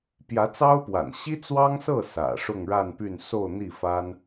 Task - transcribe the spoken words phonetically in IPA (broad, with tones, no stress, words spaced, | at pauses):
pjä˧˥t͡sɑ˥ʊ̯pwa̰˨˩n ɕi˥t͡swɑ˥ŋsɤ˥˩ sä̰˨˩ ʂʊ˥˧ŋɻa˥˧npy˥˧n so˥˧ʊ̯n̪i˥˩fa˥n